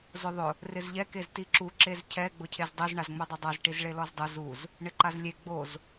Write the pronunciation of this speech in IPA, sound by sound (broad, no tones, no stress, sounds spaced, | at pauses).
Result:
z ʊ ðˤ ʊ | r ɪ z ʎ ɛ k e z t i ǁ u ǁ e z cʰ ɛ ɡ͡b ʊ cʰ e z dˤ e z ɳ a z ŋ͡m ɛ dˤ e dˤ a z ʈ i z ɭ e l ɔ z dˤ ʊ z u z | ɳ ɪ ǃ a z lʲ e ɡ͡b o z